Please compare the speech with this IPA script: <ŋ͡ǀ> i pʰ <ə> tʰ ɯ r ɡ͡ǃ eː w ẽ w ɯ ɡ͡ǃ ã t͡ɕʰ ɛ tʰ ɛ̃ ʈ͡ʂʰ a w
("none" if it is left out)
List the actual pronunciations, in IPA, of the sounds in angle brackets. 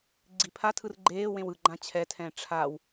ɡ͡ǀ, a

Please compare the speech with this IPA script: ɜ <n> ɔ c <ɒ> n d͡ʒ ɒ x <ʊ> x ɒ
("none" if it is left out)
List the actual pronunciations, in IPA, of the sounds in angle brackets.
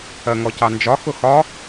ŋ, ɑ, ʊ

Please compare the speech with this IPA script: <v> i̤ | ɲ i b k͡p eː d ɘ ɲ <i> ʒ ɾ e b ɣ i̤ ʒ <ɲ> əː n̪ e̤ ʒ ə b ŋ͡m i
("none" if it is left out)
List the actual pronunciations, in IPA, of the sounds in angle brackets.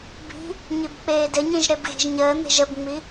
b, ĩ, ɲ

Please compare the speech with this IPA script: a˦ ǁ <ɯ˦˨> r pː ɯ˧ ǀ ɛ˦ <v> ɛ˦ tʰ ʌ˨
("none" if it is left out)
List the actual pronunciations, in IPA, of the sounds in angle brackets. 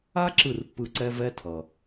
ɯ˦˨, v

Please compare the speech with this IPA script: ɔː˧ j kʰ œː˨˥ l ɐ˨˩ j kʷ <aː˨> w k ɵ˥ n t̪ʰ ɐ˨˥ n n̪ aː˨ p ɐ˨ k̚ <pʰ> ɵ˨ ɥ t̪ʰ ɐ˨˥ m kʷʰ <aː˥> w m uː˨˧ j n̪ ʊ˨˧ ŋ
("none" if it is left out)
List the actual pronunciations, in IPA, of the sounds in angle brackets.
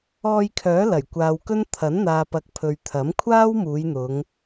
aː˨, pʰ, aː˥

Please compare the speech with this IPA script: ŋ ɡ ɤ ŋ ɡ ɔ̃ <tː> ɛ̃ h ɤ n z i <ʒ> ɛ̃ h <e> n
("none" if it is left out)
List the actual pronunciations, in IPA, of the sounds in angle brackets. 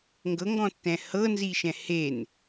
tː, ʃ, e

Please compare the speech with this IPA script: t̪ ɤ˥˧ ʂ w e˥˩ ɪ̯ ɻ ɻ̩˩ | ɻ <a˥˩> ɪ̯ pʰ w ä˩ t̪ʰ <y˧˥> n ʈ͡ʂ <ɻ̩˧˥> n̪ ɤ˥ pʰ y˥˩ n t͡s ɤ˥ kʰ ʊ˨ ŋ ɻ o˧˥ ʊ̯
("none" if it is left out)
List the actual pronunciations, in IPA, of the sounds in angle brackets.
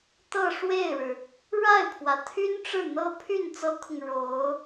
a˥˩, y˥, ɻ̩˥˩

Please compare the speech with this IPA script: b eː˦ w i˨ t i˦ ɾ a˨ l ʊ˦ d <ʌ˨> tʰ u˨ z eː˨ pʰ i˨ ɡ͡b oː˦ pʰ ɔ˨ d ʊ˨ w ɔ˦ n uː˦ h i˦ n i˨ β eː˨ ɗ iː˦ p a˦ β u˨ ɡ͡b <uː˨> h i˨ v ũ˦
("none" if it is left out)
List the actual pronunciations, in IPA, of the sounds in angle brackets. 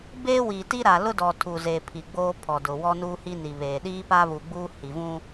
ɔ˨, uː˦

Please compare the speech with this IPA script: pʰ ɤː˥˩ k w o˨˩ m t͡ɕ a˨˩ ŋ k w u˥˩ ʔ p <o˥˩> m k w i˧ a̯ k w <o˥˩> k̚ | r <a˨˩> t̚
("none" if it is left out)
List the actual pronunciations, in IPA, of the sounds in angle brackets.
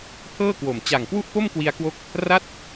o˥˩, o˦˥, a˥˩

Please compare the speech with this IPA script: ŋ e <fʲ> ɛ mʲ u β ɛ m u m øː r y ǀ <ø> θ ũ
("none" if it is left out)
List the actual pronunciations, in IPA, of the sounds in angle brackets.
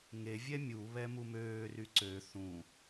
vʲ, ø

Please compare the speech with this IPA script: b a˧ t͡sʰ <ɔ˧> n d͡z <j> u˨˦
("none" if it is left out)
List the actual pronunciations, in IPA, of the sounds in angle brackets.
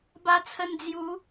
ə˧, j

